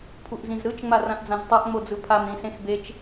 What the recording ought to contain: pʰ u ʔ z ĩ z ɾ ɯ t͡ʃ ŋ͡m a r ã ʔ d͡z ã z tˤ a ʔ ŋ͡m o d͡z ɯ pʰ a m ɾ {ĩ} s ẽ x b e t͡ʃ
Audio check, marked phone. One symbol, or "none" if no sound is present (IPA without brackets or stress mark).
ĩ